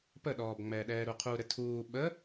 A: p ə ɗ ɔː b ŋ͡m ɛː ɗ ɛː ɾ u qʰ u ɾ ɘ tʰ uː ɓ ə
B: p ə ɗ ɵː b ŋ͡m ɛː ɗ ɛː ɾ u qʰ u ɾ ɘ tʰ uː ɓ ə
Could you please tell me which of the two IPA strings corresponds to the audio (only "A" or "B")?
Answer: A